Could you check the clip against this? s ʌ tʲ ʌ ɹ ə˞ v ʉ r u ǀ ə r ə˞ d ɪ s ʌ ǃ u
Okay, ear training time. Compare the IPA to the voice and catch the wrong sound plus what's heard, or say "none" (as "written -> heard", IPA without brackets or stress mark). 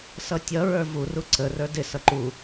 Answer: ʉ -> u